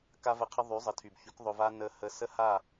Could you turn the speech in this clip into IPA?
k a˦ v ə˧ qʰ ə˦ ðˤ y˨˦ zˤ ə˨ tʰ y˨ b ç y˨˦ k ðˤ ɵ˧ v a˦ n ə˧ h ə˧ s ə˦ h a˦˨

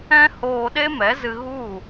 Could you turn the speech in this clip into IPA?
ɛ̃˦ h oː˧ ɗ e˦ m ɛ˨˦ z ɨ˧ ɣ u˦˨

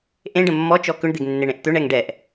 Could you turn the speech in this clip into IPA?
ʔ ẽ ɖ ə̃ mː ɔ t͡ʃ ɔ k ʏ ɳ d̪ e ɡ nː e ɳ ẽ ʔ t̪ ʏ ɳ ɛ ŋ ɖ ɛ ʔ

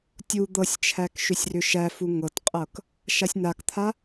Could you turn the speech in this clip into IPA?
tʲ u d̪ ɤ sʲ t͡ʃʰ æ k ʃ ʏ sʲ r ʏ ʃ æ f u ŋ ɤ t qʼ ɤ k | ʃ a sʲ n a k t̪ʰ a

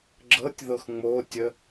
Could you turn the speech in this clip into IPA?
ɡ͡ǁ ɤ tʲ ð ɤ x ŋ͡m o tʲ ə

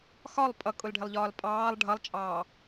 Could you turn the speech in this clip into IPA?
x ɒ lˠ pʼ ʌ kʼ ʊ l ɖʱ ɪ lˠ ʎ ɒː l pʼ ɑː lˠ ɖʱ ʌ lˠ t͡ʃʼ ɑː

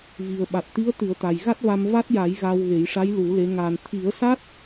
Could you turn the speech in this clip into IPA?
v i˨˩ ə̯ ɓ a˨˩ t̚ t̪ i˧˥ ə̯ t̪ ɨ˨˩˦ ə̯ t̪ a˨˩ j ɣ a˦˥ t̚ v a˧ m v a˦˥ t̚ j a˨˩˦ j ɣ a˧ w ɣ e˨˩˦ j ʂ a˧˥ j l u˨˩˦ l e˧˥ ŋ aː˨˩ n t̪ʰ i˨˩˦ ə̯ s a˦˥ t̚

